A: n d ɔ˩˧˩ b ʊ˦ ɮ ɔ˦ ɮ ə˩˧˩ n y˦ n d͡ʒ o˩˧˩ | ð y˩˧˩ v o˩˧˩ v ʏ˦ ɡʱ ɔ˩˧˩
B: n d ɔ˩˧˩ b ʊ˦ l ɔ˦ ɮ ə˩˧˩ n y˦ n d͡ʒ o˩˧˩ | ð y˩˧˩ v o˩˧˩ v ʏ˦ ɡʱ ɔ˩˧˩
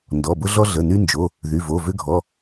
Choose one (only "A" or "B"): A